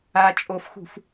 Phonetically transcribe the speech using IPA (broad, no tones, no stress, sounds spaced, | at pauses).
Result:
a t͡ʃʼ o f x ṳ f